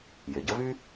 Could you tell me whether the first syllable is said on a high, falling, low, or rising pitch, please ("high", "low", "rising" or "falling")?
low